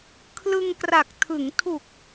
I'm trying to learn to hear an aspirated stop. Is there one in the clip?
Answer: yes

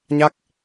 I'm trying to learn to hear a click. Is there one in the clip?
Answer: no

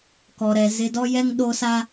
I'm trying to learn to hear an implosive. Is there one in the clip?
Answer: yes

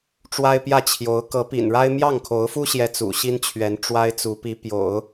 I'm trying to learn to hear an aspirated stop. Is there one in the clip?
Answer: yes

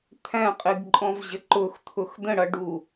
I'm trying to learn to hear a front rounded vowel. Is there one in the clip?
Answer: no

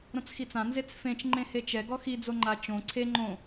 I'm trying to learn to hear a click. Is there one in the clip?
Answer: yes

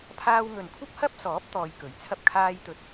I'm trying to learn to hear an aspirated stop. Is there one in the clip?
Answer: yes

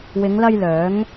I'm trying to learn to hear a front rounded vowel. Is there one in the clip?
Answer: yes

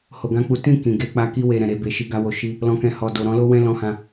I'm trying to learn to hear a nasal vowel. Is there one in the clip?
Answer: yes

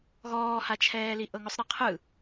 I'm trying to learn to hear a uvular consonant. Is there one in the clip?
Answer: yes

